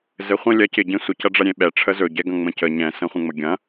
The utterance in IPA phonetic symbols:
zɘχʷə̃ lʲɐ cɪ ɟẽsʷə cɐɖ͡ʐɐɾʲẽɓɛ ʈ͡ʂʰəzɵ ɟɛɡɐ̃ŋ͡mə̃cə ɲɛ̃ sə̃χʷə̃ŋ͡məɡʲɐ̃

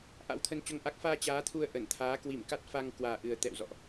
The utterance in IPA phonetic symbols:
ʔa̰˧˥wt̪ʰə˧nt͡ɕo˧ŋʔa˦˥k̚ faː˧ t͡ɕaː˨˦t̪ʰu˧ə̯ ʔə˧˩n t̪ʰaː˨˦ kwi˧˩mka˦˥t̚fa˧ŋ kwaː˨˩ʔɨ˨˩ə̯ t̪ɛ̰˧˨wzɔ̰˧˨ʔ

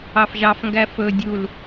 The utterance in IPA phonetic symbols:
ɑfʒɑfŋɡæ fɵ dʲul

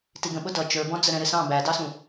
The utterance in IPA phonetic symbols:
tiɡə̃ɓʊ dʌ t͡ʃə˞bɔ̃ d͡zəɾɛ̃ɾɪsɑ̃ bædɑsũ

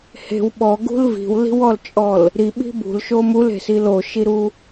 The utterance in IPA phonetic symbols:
he̤w ɓɔɡṳl vi̤wli̤wɔlt͡ʃʼɔl | ɾiɓi̤ bṳlʃo mule̤sil oʃiɾu

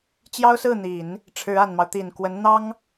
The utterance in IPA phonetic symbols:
t͡ɕjɑ˥ʊ̯sɹ̩˥˩n̪i˨˩˦n | ʈ͡ʂʰɻ̩˧˥a˨˩nmɑ˦ʊ̯ t̪i˨˩nkwə˧˥nn̪ɑ˥ŋ

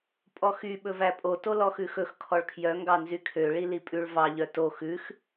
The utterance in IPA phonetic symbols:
pʼɔxy ɓɵvæpʼo tolɔxʉxɵx kʰɔɭkʰjœ ŋɡɑnzykʰø ɭilipʼʉɭ vɑ ʎœto xʉx

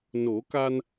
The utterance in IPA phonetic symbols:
no˨˩˦ka˧n

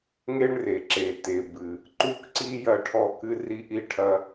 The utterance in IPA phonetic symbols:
ŋe˥ɳre˩ ǁe˩te˩bɨ˩ | ǃu˥kǀi˥ jɐ˥ʈʰɔ˥ kɨ˥ri˥ʔi˥ʈʰɐ˥

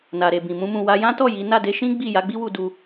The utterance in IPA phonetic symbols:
na˨ɾe˨bĩ˨ mũ˧mũ˨wa˧ jã˦tɔ˦˨ ji˨˦ na˦˨de˧ʃĩ˦ ɡ͡bi˦˨ ja˨˦ɡ͡bi˦wu˧ du˧

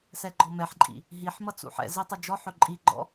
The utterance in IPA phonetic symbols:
sɛɡ͡ǃɔmɛħǃʼḭ | ɦiħmʌ t͡sṵħɛ̰zi tˤʌd͡ʒɔħɵ ǃʼiɡ͡ǃɔ̰

